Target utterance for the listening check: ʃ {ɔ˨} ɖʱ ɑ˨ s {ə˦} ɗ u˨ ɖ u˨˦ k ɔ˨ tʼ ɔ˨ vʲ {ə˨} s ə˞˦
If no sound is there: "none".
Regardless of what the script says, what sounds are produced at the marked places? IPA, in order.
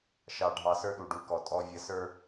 ɑ˨, ə˞˦, ə˨

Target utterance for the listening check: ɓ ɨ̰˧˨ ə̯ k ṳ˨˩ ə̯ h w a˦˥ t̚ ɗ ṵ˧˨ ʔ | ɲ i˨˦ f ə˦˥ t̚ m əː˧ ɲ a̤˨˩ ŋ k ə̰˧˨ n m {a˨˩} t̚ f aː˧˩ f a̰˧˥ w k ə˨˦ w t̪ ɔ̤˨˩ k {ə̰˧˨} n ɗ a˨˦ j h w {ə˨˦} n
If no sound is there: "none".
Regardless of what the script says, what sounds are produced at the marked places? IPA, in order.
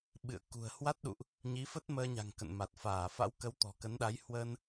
a˨˩, ə˨˦, ə˧

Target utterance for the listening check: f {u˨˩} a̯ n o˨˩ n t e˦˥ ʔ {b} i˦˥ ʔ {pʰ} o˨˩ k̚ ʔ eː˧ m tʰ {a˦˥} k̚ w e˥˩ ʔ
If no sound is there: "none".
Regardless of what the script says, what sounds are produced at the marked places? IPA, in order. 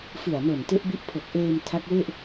ɯ˨˩, b, pʰ, a˦˥

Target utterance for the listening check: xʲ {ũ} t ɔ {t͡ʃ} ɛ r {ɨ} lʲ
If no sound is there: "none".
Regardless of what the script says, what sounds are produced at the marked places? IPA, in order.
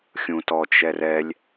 ũ, t͡ʃ, ɛ

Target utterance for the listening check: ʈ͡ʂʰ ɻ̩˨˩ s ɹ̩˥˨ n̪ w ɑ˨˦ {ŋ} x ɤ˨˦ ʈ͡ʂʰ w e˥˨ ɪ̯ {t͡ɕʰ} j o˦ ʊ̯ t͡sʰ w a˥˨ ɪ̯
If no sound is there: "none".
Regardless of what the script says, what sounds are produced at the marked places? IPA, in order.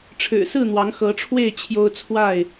ŋ, t͡ɕʰ

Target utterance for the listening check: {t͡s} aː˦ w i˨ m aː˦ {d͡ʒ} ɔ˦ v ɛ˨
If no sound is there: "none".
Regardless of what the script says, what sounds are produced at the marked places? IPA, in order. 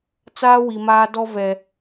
t͡s, d

